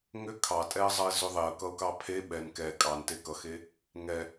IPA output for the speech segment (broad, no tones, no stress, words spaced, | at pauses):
ŋʏ kʰɑtʼɛə̯zˤʌɪ̯zʏ ðˤeə̯kʌʊ̯kɑ pʰe ɓɛn kɛ kʼɑnte kʌxe | ŋɛ